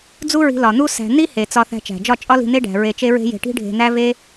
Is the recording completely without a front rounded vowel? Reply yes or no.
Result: yes